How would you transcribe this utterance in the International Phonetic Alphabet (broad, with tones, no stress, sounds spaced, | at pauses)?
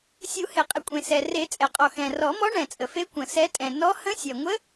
sʲ u˨˩˦ h e˩ qʼ ɪ˩ kʷʼ ẽ˩ s ɛ˩ r e˨˩˦ t͡sʼ ɛ˩ qʼ ɔ˩ x ɛ̃˩ r ɔ˨˩˦ m ɔ˧˥ ɳ ɛ̃˩ t͡sʼ ə˩ f e˧˥ kʷ ə̃˩ s ɛ˧˥ tʼ ɛ̃˩ n ɔ˧˥ h ə̃˧˥ sʲ ɛ˩ ŋʷ ə˧˥